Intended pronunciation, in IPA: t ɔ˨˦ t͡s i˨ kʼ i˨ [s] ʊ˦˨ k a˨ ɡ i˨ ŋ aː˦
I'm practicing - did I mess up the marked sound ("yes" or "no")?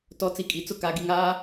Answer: yes